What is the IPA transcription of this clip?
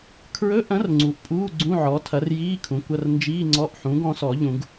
kʰɹɵ˧˥˧ʔɐ̃˩˥r ŋ͡ǀu˩˥ʔpʼuː˧˥˧ ɡ͡ǀũ˧˥˧ʕɔ˩˥tʰɐ˩˥r jiː˧˥˧ kʰũ˩˥kʷɐ˧˥˧r nd͡ʒiː˧˥˧ŋ͡ǀɔ˧˥˧ʔħũ˩˥ɡ ɔ̃˩˥sɔ˨˩˦ʎũ˨˩˦ɡ

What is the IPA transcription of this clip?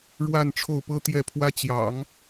ɻwa˥˧n ʈ͡ʂʰo˥˩ʊ̯pɤ˥t̪jɛ˥˩pʰwä˥ t͡ɕjɑ̰˨˩˦ŋ

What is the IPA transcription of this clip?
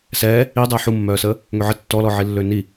sɛː | i dˤɛːħumːœːsəː | ŋøʕə tːɔlɔʕi lːøni

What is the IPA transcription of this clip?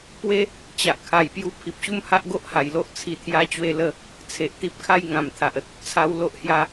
pwe˦ | t͡ɕa˨ʔkʰa˨˩jpju˧ pʰi˨p̚ɕu˦mha˦ʔ ɡo˦ʔha˨˩jlo˦ʔ t͡sʰi˧t̪ʰja˦t͡ɕwe˥˧lə˥˧ | t͡sʰe˨ʔt̪i˦p̚kʰa˦j ŋã˨˩mt̪ʰa˨ʔə˨t̚ | t͡sʰa˧wlo˦ʔhja˧

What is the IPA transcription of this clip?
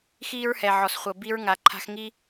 xiː˦ɹhɛ˨ ʕɔ˨sχʷɤ˨ bi˧ɹŋa˨ǃʰa̤˧x ŋi˦

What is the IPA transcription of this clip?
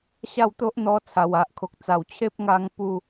ɕa˥˧wt̪o˦ʔn̪ɔ˧ t͡sʰa˨˩wa˨ʔkʰo˨k̚t͡sa˨˩w t͡ɕʰe˦p̚ŋa˧ŋ pu˥˧

